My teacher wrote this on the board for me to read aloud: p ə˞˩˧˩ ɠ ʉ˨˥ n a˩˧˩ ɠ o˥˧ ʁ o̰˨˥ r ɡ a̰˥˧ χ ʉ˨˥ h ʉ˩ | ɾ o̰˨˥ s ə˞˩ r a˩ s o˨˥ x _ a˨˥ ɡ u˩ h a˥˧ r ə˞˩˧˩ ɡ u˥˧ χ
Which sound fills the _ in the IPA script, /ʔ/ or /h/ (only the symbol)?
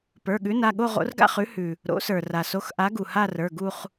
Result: ʔ